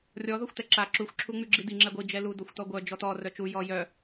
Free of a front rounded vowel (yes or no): no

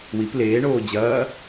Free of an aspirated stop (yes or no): yes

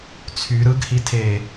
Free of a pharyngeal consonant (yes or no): yes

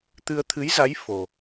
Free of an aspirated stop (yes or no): no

